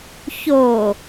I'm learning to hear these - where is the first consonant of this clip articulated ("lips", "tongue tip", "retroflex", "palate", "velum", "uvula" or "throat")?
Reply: palate